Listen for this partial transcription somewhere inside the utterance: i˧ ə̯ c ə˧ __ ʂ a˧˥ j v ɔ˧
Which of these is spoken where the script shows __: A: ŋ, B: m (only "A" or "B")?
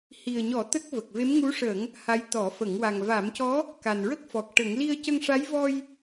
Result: A